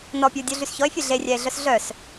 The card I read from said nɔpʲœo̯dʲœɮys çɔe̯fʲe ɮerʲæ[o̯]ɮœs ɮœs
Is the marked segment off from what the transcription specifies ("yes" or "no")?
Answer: yes